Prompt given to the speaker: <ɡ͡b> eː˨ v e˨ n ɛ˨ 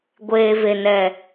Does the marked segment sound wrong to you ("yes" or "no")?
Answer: yes